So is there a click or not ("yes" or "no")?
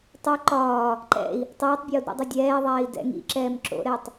yes